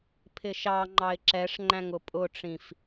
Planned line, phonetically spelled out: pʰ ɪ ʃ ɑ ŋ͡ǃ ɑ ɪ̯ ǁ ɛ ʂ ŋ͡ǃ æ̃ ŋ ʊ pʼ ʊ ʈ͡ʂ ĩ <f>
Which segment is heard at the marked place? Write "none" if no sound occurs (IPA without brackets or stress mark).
f